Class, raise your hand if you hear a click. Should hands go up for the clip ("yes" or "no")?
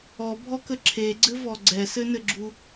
yes